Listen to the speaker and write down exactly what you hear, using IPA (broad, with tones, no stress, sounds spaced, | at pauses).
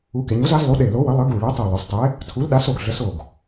u˨˥ k e˩˧ ɲ u˨˥ z a˨˥ z lˠ u˨˥ ɗ e˧˩ l o˨˥ w ə˨˥ lˠ ə˨˥ ɡ u˧˩ ɭ e˨˥ tˤ u˧˩ lˠ o˩˧ s tˤ e˨˥ | tʰ u˨˥ l ɗ a˨˥ s o˧˩ ɡ ɮ ə˨˥ s o˧˩ ɡ